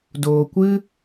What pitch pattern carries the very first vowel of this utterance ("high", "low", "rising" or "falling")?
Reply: low